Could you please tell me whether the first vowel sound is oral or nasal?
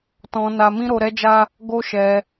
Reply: nasal